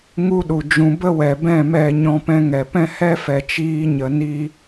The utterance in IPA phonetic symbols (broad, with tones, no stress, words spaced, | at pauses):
ŋu˦ɗu˨d͡ʒũ˧ bə˦wɛ˨bɛ̃˦˨ mɛ˦˨ ɲɔ̃˧pɛ̃˧ŋɛ˨ pɛ̃˦hɛ˦ fɛ˨t͡ʃiː˧ɲə˨ ni˦